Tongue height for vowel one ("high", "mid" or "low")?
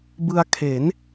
high